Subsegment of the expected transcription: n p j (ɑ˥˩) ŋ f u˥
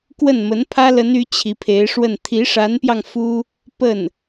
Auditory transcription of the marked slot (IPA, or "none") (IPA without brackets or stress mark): ɑ˧